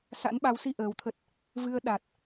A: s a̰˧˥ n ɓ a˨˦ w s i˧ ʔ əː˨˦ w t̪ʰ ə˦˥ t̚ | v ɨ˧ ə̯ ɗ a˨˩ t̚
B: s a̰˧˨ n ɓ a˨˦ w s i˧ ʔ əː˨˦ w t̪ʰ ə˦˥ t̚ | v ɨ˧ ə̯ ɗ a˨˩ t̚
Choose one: A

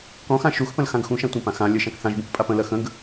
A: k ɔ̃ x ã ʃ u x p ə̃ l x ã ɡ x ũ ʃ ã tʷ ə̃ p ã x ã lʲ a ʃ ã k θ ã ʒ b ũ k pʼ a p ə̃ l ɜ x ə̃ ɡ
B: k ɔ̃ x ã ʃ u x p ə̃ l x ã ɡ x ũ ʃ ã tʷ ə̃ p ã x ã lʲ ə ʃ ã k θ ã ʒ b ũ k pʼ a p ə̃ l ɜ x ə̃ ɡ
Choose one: B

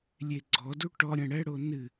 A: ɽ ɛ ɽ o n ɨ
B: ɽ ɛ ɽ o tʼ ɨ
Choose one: A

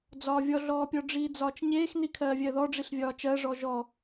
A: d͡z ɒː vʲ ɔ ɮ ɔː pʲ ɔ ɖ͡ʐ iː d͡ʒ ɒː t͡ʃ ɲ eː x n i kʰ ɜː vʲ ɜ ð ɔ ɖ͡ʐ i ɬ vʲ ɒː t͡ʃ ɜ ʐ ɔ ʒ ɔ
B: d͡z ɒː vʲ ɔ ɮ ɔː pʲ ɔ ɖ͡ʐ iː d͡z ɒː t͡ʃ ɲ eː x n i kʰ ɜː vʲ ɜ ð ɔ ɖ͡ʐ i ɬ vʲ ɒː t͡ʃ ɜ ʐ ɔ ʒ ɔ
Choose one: B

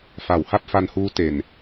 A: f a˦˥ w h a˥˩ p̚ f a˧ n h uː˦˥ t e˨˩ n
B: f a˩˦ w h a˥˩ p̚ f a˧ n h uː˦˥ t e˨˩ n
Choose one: B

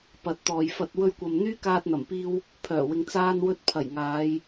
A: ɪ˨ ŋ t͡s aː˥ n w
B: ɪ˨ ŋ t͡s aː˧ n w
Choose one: B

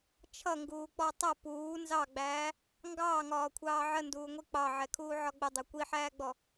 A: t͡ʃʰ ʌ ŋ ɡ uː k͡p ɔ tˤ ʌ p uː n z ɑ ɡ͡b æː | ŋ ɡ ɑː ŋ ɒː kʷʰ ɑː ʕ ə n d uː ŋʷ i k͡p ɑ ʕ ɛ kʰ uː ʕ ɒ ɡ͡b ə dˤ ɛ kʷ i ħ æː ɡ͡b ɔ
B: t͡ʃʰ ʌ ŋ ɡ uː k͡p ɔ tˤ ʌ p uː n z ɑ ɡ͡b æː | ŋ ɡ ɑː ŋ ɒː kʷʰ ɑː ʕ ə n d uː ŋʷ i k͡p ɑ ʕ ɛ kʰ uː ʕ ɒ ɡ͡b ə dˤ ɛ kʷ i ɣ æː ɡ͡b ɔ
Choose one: A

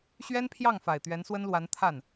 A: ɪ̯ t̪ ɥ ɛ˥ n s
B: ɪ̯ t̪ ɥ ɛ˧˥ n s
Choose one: B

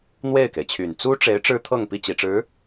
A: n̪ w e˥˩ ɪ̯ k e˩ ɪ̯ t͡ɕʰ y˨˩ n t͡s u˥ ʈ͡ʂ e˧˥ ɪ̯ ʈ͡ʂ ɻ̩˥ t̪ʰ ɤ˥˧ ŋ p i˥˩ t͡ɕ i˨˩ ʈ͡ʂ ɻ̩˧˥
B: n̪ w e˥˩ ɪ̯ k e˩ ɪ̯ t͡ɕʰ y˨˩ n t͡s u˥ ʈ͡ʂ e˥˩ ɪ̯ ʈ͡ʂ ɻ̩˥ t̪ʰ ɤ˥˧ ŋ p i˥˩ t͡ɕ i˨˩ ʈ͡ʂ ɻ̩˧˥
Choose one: A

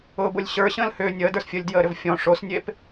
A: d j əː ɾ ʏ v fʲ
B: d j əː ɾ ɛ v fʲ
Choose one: A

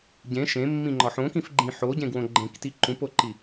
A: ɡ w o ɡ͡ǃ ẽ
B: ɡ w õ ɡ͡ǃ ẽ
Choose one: B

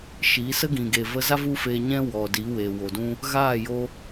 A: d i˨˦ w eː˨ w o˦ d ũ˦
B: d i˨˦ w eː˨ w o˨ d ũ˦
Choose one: B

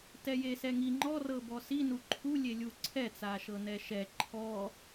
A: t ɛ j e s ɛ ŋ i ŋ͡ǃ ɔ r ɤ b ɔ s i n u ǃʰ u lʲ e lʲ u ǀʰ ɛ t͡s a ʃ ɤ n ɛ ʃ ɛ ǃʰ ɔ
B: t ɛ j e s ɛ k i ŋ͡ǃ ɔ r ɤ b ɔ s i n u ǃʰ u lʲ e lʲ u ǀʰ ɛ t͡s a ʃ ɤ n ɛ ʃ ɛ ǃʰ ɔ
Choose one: A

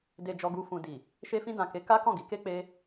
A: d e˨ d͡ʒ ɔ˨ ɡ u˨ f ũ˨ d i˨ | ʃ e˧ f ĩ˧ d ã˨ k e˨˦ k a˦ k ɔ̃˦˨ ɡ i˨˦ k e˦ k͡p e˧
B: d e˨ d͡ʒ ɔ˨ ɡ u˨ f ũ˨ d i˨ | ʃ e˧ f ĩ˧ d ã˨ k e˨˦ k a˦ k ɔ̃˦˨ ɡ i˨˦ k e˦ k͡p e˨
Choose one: A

